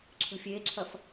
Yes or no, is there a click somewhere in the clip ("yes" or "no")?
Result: yes